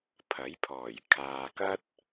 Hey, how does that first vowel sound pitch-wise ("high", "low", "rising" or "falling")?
rising